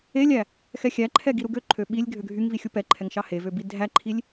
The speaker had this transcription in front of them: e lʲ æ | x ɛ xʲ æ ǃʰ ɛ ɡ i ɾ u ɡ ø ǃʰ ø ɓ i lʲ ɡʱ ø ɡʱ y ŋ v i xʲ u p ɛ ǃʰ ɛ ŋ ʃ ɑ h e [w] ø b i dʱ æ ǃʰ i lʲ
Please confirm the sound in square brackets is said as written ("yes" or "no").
no